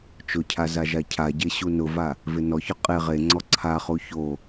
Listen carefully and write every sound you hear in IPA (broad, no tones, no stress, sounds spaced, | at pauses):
t͡ʃ ʊ cʰ a z a ʒ a cʰ a ɟ e ɕ u n ʊ v a | v ɪ n ɔ ç ʊ qʼ e ʁ e ŋ͡ǀ ɔ ǀʰ a χ u ç o